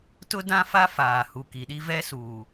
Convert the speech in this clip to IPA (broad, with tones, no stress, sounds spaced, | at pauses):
t ʊ˦ d ã˦ f a˦ f aː˨ h u˨ k i˨ ɗ i˦ v ɛ˦ s uː˨